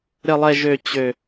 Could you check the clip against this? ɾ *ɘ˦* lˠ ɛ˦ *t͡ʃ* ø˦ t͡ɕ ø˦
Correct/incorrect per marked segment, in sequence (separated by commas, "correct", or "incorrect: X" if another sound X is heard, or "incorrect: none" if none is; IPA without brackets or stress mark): correct, incorrect: ʒ